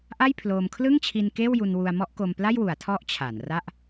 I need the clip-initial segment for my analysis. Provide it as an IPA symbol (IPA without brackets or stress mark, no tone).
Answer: ʔ